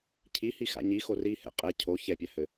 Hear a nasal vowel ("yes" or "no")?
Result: no